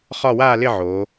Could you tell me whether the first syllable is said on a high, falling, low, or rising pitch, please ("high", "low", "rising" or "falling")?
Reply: falling